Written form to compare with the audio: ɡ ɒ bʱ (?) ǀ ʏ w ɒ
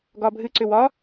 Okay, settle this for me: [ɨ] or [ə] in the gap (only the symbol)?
ɨ